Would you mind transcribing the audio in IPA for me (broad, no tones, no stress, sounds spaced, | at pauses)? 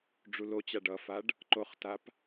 ɖ͡ʐ u l o t͡ɕ a ɖ ʌ f a ɖ | ǃ o χ t a p